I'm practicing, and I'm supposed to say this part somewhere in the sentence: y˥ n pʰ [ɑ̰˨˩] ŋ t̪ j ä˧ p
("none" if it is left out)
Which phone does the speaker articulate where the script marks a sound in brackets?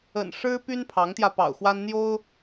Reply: ɑ˧˥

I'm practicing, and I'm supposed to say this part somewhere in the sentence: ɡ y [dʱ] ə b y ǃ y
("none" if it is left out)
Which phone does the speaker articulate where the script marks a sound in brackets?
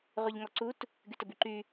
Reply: t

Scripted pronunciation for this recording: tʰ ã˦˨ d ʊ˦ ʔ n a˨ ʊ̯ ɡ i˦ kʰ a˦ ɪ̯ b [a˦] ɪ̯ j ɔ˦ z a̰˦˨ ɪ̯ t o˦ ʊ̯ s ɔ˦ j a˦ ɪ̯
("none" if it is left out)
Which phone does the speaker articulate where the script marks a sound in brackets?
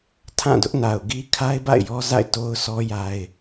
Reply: a̰˦˨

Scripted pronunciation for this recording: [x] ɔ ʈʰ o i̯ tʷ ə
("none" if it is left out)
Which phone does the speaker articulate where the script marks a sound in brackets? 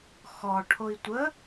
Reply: x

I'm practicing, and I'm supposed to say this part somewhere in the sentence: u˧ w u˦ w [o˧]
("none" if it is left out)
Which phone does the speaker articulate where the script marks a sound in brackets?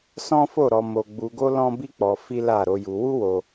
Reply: o˧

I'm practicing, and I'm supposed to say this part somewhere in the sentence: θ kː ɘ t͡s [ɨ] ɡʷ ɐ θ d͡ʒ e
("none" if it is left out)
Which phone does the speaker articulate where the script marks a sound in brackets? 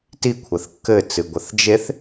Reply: ɨ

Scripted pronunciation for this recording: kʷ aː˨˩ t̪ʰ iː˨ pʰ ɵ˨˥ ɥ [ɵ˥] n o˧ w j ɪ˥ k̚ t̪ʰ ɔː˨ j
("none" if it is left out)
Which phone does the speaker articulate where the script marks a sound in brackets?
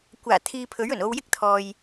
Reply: ɵ˨˩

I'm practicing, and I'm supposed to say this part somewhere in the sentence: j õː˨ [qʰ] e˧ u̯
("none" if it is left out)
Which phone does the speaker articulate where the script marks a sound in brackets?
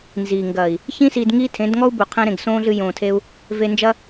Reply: tʰ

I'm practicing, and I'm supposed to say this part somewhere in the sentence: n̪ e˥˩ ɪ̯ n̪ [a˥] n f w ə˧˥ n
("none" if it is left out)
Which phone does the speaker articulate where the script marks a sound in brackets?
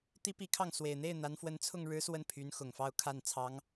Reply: a˧˥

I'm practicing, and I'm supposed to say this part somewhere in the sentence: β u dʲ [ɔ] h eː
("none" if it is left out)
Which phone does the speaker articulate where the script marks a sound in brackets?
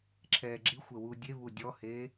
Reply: ɔ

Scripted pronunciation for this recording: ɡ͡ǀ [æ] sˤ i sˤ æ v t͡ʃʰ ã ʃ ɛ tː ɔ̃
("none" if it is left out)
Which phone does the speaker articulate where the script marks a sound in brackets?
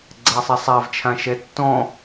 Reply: æ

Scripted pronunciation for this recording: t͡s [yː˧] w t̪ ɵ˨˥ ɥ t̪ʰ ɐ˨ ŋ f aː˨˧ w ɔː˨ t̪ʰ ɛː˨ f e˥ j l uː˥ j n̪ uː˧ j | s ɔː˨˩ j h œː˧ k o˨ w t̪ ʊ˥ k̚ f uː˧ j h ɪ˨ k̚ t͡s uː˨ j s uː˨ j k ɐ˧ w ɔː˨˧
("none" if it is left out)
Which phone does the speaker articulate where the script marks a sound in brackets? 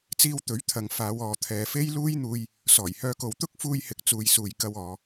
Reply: iː˧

